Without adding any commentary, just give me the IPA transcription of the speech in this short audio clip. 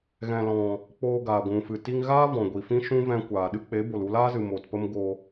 ɣ ɛ̃˨ l ɔ̃˨ | k͡p oː˧ ɡ aː˨ ɡʷ ũ˨ f ɨ˨ t i˧ ŋ ɣ aː˦ v ɔ̃˨ ɡʷ i˨ f ĩ˦ ʃ ũ˦ v ɛ̃˧ kʷ aː˨ ɗ ɨ˦ k͡p e˨˦ b o˨ l u˧ l aː˦ z ɨ˨ m o˨ t p ə˦ m ɡ o˧

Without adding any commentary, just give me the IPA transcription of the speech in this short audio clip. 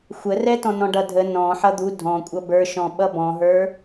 xʷ ə r ɛ t ɔ̃ n ɔ̃ ɖ ʌ dʱ ə n ɔ̃ ħ ʌ d̪ u dʱ ɔ̃ kʷʼ ʌ b ə˞ ʃ ɔ̃ ɓ ʌ b ɔ̃ ɦ ə˞

